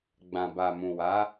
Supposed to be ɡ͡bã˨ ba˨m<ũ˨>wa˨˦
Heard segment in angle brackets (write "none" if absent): ũ˨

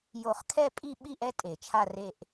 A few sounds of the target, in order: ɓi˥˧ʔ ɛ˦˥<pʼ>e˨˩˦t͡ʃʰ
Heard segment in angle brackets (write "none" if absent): tʼ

